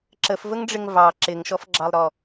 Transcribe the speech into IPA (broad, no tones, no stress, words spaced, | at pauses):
ǁəfvəŋɖ͡ʐɪŋ vɑ ǁɪŋʃɔfɡ͡ǁɑlˠɾɔ